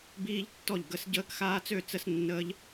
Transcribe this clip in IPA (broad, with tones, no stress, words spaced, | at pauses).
biː˦ʎtːɔ˥˨ʎ ɡə˦s ɟəː˦kxaː˦t͡sø˥˨ t͡sə˦snːəː˦ʎ